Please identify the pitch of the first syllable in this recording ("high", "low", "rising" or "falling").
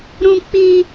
high